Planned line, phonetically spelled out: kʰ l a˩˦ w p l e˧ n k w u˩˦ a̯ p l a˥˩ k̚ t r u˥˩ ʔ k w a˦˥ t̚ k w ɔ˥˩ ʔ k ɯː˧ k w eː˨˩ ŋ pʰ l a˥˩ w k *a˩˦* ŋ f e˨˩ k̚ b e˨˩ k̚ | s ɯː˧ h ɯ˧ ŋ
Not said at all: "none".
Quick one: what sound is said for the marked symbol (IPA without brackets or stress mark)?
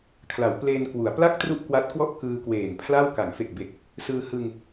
a˩˦